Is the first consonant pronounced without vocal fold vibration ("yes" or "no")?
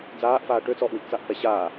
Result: no